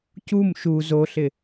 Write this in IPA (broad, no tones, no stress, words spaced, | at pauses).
cum ʃu zoɬɪ